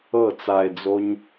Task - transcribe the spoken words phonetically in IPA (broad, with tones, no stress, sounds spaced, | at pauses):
ɤ˦˨ t͡s a˧ e̯ d͡z o˦ ɲ